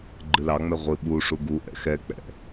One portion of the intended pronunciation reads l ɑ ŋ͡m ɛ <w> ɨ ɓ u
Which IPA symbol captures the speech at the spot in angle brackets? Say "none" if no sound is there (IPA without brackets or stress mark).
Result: ʁʷ